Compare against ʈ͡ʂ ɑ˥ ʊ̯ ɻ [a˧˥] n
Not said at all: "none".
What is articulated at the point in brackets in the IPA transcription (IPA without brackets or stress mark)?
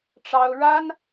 a˥